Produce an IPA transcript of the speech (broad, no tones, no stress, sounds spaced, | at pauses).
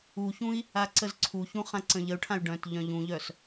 u ç ũ i̯ | a ǀ ə z ǀʰ u ç ũ χ ã ǀ ə̃ ʎ ə u̯ ʈʰ ã y̯ ɖ œ̃ t ʎ œ̃ ʎ ũ ʎ œ s